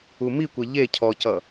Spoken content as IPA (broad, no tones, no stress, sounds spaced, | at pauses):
u m i kʷ ɛ ʎ e cʰ ɔ c ʌ